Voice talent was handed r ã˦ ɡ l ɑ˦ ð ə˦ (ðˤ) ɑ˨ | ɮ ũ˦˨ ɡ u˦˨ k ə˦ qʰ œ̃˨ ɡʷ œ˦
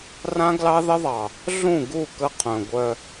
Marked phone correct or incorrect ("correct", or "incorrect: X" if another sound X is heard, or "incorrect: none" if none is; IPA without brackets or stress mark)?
correct